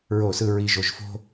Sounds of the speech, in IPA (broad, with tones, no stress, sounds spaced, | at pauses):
ɹ o˦˨ s ɯ˦ ɹ i˧ ʒ o˧ ʒ f o̤˦